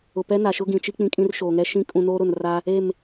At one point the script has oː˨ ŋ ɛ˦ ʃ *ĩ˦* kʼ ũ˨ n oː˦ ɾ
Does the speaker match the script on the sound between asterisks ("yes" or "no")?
no